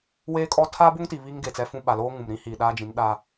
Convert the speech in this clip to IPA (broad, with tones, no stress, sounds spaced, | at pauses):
w eː˦ kʼ ɔ˦ tʰ aː˦ b o˦ ŋ t i˨ β i˦ ŋ ɡ e˨ t͡s ɛ˦ f ũ˦ ɓ a˨ l oː˦ ŋ ũ˨ m ɾ ĩ˦ h i˨ ɗ aː˦ d͡ʒ ĩ˨˦ n ɗ aː˦